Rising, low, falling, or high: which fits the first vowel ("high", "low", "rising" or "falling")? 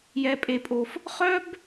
high